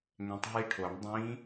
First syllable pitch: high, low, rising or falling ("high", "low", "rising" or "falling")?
rising